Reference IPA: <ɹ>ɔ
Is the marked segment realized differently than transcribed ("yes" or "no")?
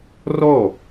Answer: yes